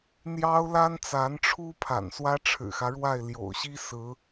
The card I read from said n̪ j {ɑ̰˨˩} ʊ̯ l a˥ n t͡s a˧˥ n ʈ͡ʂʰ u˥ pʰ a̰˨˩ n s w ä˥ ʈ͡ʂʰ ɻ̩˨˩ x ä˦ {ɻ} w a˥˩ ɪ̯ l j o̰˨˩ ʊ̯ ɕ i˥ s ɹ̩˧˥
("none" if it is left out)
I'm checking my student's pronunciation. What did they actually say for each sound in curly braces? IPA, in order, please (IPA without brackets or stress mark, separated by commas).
ɑ˥, ɻ